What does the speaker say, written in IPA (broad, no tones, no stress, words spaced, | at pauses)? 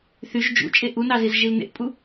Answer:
θyʒ d͡ʒṵt͡ʃʼe ʔunɑziz ʒilnḛʔpʼu